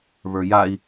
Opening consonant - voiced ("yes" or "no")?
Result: yes